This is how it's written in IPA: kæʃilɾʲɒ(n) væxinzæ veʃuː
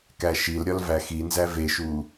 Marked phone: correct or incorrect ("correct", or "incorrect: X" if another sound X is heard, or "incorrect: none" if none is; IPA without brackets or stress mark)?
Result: incorrect: l